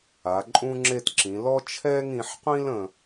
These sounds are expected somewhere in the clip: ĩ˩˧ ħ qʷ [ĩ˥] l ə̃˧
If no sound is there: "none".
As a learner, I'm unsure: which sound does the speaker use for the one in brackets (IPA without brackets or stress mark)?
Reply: ĩ˥